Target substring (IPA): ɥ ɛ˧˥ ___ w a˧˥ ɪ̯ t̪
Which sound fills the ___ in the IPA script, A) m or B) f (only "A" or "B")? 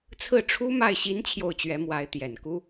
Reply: A